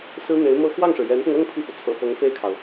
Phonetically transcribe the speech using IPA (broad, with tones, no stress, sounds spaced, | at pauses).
s ɹ̩˥ n̪ e˧˥ ɪ̯ m ɤ˥ x w ɑ˥˩ ŋ ʂ ɻ̩˩ j ɛ˧˥ n p ʊ˧ ŋ ɤ˥˧ ŋ pʰ i˥˩ f u˩ t͡sʰ ɤ̰˨˩ f ɤ˧˥ ŋ f e˥˩ ɪ̯ kʰ ɑ˩ ʊ̯